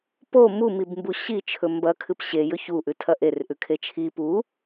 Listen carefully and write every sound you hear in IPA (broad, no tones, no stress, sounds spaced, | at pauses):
p o m u m i b m b u ɕ i t͡ʃʰ ɵ m b ɐ kʰ ɨ p ɕ e j ɵ ç u ʔ ʉ tʰ ɐ ʔ e r ʔ ʉ kʰ e t͡ʃʰ i p u